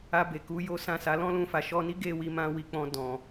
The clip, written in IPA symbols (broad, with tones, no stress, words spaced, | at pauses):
a˧be˨ ku˨˦jo˦sã˦˨sa˨˦ lɔ̃˦lũ˧fa˨ ʃɔ˧ni˦ɡe˦˨ wi˧mã˧wi˨ k͡pɔ̃˧dɔ̃˨